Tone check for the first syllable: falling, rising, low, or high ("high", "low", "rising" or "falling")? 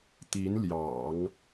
rising